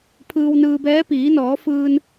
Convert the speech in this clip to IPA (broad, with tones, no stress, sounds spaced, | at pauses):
pʰ ɯː˧ w n ɯː˧ b ɛː˧˥ p iː˩˧ n ɔː˩˧ f ɯː˧ n